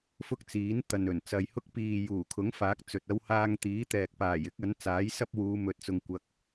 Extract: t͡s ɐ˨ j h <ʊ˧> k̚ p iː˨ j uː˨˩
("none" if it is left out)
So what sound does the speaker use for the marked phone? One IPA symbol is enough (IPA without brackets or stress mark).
ʊ˥